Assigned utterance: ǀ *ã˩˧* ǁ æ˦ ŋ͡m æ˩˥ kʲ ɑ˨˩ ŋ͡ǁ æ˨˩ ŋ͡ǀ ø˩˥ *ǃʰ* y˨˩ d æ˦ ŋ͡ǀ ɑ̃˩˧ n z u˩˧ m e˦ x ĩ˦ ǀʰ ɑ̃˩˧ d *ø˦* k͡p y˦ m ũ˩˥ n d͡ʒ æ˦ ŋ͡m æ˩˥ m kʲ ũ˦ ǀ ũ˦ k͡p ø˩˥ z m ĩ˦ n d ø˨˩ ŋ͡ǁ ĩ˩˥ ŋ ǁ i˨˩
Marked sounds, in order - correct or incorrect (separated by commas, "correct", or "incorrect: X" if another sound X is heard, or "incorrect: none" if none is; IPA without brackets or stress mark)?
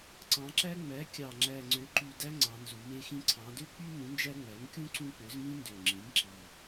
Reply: incorrect: ɑ̃˩˧, incorrect: ǃ, correct